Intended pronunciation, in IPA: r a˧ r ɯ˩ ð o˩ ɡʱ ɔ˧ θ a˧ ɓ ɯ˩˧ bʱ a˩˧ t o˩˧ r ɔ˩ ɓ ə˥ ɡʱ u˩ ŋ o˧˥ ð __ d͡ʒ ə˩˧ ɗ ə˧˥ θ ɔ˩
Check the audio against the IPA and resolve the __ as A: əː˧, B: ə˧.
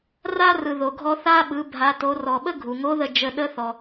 B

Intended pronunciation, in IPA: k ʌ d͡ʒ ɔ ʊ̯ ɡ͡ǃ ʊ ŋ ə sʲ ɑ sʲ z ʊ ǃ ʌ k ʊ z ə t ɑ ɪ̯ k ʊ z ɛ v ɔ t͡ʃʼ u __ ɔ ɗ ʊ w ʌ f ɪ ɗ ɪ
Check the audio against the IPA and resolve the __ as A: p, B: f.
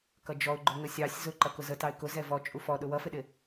B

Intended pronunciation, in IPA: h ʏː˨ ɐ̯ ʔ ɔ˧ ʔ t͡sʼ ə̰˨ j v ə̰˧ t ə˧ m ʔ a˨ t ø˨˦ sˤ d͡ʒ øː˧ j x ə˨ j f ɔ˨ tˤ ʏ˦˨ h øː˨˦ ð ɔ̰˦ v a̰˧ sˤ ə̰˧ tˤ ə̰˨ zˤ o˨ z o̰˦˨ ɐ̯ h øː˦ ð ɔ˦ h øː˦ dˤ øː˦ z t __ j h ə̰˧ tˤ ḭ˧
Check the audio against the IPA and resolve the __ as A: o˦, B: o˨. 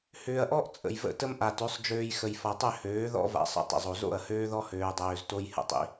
A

